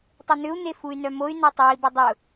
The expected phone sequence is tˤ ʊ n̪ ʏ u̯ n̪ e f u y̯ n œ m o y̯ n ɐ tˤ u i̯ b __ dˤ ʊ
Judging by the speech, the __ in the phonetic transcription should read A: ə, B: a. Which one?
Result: A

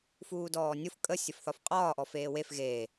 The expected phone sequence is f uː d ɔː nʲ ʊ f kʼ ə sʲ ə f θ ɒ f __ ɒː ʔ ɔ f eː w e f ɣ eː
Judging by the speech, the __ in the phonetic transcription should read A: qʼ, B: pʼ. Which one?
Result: A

